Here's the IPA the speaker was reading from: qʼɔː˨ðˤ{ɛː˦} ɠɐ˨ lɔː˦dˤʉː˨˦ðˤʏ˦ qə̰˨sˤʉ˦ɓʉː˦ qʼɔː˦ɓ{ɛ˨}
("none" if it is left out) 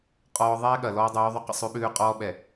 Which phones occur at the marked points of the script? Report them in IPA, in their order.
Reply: ɛː˦, ɛ˨

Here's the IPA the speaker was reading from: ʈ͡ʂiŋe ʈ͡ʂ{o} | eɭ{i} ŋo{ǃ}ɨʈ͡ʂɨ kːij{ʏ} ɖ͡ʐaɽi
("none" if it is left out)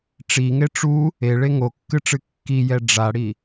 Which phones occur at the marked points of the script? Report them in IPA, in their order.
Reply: u, e, kː, ɛ

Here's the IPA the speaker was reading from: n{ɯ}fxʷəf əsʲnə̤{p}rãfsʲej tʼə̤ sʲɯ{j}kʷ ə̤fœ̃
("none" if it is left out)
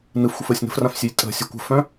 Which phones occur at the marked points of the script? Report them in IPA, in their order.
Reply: ɯ, f, none

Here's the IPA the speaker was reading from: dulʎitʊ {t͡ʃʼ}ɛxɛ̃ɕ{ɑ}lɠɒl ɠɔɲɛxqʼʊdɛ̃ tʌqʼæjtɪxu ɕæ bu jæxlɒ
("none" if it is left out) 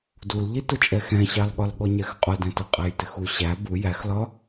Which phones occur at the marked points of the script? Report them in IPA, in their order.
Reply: t͡ʃʼ, ɑ

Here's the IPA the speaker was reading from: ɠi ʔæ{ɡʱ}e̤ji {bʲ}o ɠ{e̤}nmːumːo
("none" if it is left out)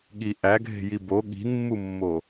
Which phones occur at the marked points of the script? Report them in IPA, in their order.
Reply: ɡʱ, b, i̤

